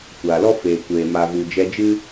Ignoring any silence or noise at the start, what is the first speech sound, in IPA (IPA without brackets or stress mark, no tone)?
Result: kʷ